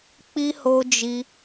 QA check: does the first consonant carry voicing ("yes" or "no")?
no